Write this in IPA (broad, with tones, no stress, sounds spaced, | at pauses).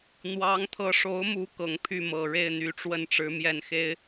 n̪ w ɑ˧˥ ŋ t̪ʰ ɤ˧˥ ʂ o˧˥ ʊ̯ m u˧˥ k ɤ˨˩ ŋ pʰ y˥˩ m ɤ˨˩ ɻ e˥˩ ɪ̯ n̪ y˧˥ ʈ͡ʂ w ə˥˩ n ʈ͡ʂ ɻ̩˧˥ m j ɛ˥˩ n x e˥ ɪ̯